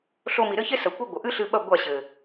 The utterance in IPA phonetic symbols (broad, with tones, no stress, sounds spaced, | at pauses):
ɬ o˧ m i˨ ɾ ɘ˦ ç e˦ s ɐ˨ kʷ e˦ ɡʷ ɐ˨ ʔ ɨ˦ ɬ ɨ˧ ɓ ɐ˦˨ ɡʷ a˦˨ ɕ ɘ˨